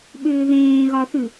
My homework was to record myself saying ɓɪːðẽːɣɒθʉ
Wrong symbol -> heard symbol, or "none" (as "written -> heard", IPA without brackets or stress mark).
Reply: ɪː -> ʏː